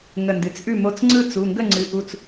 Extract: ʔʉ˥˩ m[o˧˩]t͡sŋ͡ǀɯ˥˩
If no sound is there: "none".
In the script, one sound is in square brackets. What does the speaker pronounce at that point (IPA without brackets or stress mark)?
o˧˩